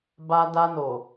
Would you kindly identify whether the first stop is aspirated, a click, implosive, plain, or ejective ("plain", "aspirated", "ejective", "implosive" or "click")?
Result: plain